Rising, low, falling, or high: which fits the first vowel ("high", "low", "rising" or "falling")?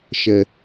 low